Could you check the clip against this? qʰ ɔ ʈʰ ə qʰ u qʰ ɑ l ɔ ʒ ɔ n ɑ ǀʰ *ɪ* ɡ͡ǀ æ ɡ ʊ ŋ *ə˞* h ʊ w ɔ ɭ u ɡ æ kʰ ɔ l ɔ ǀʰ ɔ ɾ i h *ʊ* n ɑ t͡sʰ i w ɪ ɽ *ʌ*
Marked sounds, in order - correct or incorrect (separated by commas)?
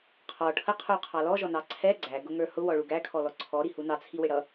incorrect, correct, incorrect, correct